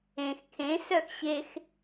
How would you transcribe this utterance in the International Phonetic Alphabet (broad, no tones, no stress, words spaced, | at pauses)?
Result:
ẽx kʰẽsœx ɕex